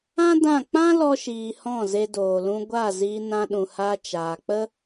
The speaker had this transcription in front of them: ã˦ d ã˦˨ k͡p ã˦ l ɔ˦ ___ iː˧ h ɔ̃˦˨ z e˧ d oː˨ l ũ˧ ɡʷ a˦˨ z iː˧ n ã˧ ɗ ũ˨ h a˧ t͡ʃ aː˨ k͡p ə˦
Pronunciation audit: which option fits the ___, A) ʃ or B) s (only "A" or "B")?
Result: A